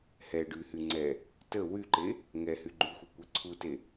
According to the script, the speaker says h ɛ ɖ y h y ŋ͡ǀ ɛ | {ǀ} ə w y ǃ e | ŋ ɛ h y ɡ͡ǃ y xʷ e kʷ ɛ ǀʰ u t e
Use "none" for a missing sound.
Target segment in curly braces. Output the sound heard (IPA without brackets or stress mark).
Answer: t